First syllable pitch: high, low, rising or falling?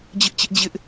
high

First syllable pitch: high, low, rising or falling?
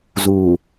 low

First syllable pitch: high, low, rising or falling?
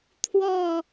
falling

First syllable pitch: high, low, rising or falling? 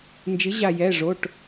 rising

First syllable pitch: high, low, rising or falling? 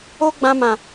high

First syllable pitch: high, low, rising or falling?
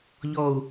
low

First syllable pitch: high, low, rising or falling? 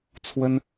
high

